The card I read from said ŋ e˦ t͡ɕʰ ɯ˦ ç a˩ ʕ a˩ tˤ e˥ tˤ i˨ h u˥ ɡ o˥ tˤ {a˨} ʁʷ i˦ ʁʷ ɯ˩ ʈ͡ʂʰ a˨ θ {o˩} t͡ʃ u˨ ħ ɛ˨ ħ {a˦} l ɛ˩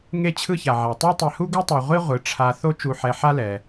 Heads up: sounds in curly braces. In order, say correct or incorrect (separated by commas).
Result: correct, incorrect, correct